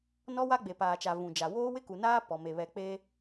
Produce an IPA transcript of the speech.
n ɔ˦ w a˦ ɡ͡b e˨ p aː˨ t͡ʃ a˨ v ũ˨ d͡ʒ a˨ w oː˦ w ɪ˦ k u˨ n aː˦ p ɔ˨ m e˨ β ɛ˨ k͡p e˦

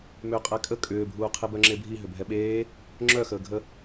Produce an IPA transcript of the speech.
m ʏː qʼ æ kʼ ə kʼ ʏː bʱ uː qʰ e b œ ŋ͡ǁ e bʱ i ɦ ʏ bʱ ɛ ɓ eː | ŋ͡ǁ œ x əː ɡʱ ə

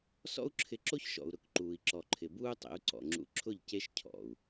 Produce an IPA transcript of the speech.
s ɔ̰˦ u̯ ǁʰ ɪ˧ ǁ o˦ ç ʃ ɔ̰˨ u̯ ɾ ʊ˦ k ǃ uː˨ i̯ ǁ ɔ˨ ǃʰ ɪ˨ b uː˦ tˤ ḛ˨˦ u̯ ǀ ɔ̰˨ ŋ͡ǁ ṵ˧ ǁʰ ʊ˦˨ ʎ c e˦ ʃ cʰ ɔ̰˨ u̯

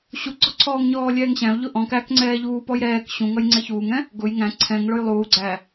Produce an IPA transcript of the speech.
ɕ u ɡ͡ǀ ɔ ǀʰ ɔː ŋ ɲ ɔː lʲ ɛː ŋ ɕ æ̃ ʊ̯ ʎ ʊ ʔ ɔ̃ k æ k ŋ͡ǀ ɛː ʎ uː p ɔ j ɾ ɛː k ɕ ũ ŋ ʌ j ŋ͡ǀ ɛ ç uː ŋ ɛ̃ | ɡ ʊ j ŋ æ̃ ǀʰ ɛ̃ ŋ ɭ ʊ j lˠ uː ɡ͡ǀ æ

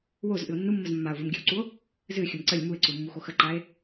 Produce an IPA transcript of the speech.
w o z ʔ ɨ o̯ nː u mː ə z mː a o̯ v ɨ m ɡʲ ɨ w ǀ u o̯ | z ɨ xʲ ə m ǀ ə lʲ m u e̯ ǀ u mː u x o x ə ǃ a e̯

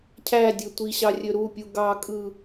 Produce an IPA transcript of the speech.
cʰ æ dʲ ø tʷ i ɕ ɑ rʲ ø ɾ u pʲ u ɡ ɑ kʼ ɯ

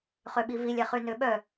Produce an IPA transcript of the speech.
χ ø ɓ i v i lʲ ɛ χ y n ø ɓ œ

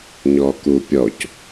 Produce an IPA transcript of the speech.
ɲ ɔ k u pʲ ɔ c

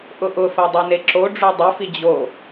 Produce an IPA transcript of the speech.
ʔ ʊ ʔ ʊ f ɜ dˤ a n e ǁ o ɖ͡ʐ o dˤ ɘ f i d͡ʑ o

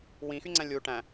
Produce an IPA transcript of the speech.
w ĩ x y ŋ͡ǀ æ̃ lʲ u ʈ æ̃

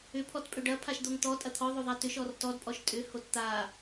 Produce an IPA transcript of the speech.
ʏ pʰ ɔ t pʼ ʏ ɖ ɐ pʰ a ʃ d̪ o ŋ t̪ ɔ tʼ ɐ t̪ʰ ɔ ðˤ o ðˤ a t ʏ ʃ ɔ r t ɔ d pʼ ɔ ʃ tʼ ʏ h o t t̪ a

